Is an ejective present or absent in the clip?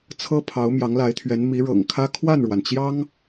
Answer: absent